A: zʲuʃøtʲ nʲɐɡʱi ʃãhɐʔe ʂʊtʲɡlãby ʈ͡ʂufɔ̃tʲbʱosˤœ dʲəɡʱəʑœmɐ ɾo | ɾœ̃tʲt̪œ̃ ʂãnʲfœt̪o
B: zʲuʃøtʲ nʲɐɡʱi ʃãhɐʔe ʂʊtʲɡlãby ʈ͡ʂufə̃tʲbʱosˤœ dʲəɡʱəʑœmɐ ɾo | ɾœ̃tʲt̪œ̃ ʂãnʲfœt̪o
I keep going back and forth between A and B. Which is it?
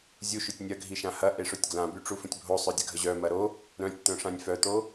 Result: B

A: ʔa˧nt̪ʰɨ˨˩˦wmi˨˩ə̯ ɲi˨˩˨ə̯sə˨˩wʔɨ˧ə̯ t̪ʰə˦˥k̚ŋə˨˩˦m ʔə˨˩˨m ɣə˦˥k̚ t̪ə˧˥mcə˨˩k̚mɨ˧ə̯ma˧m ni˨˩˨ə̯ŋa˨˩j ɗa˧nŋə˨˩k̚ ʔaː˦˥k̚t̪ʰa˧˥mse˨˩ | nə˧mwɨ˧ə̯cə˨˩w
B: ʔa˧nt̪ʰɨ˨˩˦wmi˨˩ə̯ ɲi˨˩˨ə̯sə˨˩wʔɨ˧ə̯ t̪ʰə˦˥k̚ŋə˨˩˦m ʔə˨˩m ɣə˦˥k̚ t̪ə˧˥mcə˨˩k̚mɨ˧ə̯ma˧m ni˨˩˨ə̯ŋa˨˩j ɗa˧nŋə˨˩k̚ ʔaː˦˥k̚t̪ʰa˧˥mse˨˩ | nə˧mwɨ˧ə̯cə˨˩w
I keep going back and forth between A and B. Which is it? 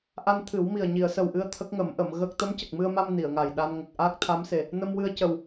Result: A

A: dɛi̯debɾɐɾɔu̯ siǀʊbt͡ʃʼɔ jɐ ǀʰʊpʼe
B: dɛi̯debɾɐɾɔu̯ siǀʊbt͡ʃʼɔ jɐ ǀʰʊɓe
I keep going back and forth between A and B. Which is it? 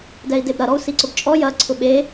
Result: B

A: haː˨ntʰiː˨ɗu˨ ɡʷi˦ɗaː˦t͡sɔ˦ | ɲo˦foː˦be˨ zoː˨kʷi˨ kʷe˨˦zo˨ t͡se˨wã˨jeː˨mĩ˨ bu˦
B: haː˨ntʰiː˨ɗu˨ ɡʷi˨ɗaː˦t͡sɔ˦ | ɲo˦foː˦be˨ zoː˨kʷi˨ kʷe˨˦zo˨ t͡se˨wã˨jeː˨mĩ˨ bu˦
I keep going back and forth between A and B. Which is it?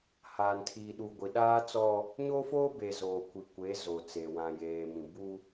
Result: B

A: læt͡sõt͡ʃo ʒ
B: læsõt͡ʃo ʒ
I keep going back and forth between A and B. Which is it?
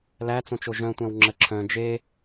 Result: A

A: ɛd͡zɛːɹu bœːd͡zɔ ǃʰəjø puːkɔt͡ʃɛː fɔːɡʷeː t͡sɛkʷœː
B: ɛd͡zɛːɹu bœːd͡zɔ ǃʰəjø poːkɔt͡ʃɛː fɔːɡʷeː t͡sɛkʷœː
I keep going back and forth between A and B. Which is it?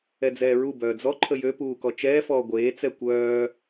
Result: A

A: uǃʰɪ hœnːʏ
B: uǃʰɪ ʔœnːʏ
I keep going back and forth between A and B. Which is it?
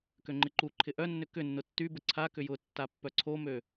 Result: B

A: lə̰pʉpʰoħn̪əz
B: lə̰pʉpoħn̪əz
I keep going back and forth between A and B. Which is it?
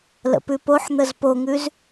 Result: B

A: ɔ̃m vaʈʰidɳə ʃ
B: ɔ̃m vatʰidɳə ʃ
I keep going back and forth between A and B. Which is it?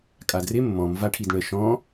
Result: A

